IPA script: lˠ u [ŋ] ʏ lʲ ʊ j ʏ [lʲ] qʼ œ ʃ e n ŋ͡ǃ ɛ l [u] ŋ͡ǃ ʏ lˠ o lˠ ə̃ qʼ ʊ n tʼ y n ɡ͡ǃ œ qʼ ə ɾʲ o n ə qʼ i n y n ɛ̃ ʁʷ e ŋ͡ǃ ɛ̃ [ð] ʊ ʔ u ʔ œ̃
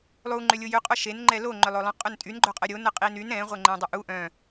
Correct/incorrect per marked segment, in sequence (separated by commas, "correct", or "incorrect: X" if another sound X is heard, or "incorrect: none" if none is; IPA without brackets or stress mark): incorrect: ŋ͡ǃ, incorrect: none, incorrect: o, incorrect: dˤ